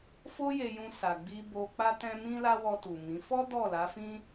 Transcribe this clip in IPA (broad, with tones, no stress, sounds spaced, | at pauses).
f o˦ j e˧ j ũ˧ s a˨ ɡ͡b i˧ b o˧ k͡p a˦ t ɛ̃˦ m ĩ˦ l a˦ w ɔ˧ t u˨ m ĩ˨˦ f ɔ˦ d ɔ˦˨ l a˨˦ f ĩ˦